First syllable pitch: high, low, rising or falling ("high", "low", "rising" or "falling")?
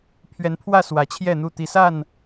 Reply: rising